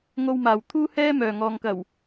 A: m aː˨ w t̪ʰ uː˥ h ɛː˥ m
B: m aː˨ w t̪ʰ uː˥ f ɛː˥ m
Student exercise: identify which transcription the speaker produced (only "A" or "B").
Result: A